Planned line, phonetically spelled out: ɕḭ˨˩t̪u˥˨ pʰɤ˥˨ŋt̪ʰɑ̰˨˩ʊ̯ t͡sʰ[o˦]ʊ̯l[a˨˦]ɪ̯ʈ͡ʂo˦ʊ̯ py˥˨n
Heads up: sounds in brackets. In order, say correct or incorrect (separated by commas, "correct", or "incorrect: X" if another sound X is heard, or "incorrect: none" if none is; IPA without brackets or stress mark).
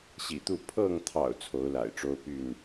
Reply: incorrect: o˨˦, incorrect: a̰˨˩